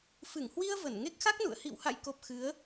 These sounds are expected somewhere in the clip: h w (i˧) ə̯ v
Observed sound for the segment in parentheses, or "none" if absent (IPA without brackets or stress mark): i˧